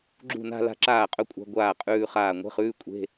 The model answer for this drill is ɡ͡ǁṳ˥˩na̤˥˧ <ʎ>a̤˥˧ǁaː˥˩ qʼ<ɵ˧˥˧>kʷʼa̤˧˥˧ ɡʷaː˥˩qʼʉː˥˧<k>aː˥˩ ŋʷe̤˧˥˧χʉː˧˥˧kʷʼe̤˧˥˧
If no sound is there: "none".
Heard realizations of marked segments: l, ɵ˥˧, χ

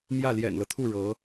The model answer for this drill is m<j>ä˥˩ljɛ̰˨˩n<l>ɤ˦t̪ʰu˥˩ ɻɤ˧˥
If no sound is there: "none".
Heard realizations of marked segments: j, l

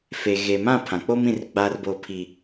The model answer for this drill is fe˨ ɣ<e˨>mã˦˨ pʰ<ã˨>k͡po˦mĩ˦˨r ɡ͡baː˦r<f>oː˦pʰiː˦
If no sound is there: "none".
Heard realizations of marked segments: e˨, ã˨, b

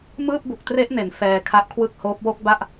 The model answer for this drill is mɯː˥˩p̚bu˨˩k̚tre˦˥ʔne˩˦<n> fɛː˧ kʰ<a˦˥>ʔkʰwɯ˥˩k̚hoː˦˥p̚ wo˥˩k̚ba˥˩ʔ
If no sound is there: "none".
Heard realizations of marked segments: n, a˦˥

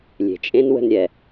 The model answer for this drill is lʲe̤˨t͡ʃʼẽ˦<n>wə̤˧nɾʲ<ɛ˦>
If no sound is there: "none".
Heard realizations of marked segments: n, ɛ˨

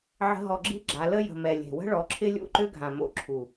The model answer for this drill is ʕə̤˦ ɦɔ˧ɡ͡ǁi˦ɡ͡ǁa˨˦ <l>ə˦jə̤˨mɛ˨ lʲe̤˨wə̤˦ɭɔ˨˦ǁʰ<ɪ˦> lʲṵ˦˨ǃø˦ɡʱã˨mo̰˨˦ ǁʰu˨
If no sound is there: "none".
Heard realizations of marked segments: l, ɪ˦

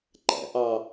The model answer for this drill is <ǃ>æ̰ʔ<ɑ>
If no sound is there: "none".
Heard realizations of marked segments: ǃ, ɑ

